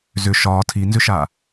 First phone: z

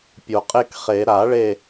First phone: pʲ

